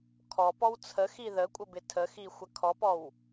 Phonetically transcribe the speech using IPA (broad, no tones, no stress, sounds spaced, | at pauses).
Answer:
kʰ ɔ p ɔ w t͡sʰ ə x i ð ə kʷʼ ə b ɪ tʰ ə x i xʷ ə kʰ ɔ p ɔ w